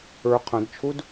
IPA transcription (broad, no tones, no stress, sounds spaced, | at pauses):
ə˞ qʰ ɐ̃ d t͡ʃʰ u d